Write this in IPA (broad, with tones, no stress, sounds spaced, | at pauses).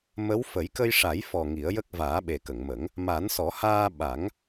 m ə˧˥ w f ə˨˩˦ j k ə˧ j ʂ a˨˩˦ j f ɔ˨˩ ŋ i˨˩˦ ə̯ j ə˦˥ k̚ v aː˨˩˦ ɓ e˨˩ k ə˨˩˨ ŋ m ə˨˩˦ ŋ | m a˨˩˦ n s ɔ˨˩˦ h aː˧ ɓ a˨˩˦ ŋ